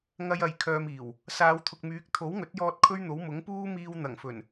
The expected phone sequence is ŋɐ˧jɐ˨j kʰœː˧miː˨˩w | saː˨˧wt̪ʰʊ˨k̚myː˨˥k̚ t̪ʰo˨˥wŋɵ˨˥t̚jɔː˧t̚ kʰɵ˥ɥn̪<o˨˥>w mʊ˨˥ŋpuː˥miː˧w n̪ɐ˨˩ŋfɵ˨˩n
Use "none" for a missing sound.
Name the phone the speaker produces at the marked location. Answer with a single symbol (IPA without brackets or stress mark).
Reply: o˨˥